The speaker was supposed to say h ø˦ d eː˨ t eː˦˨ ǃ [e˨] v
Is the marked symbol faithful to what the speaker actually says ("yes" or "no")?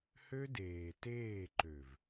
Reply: no